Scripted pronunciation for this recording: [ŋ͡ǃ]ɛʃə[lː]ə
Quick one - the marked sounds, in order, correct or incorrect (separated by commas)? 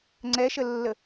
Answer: incorrect, correct